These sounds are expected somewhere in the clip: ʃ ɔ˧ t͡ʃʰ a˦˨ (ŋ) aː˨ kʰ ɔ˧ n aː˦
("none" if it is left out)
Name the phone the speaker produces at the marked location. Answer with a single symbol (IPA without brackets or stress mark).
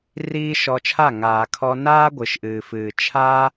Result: ŋ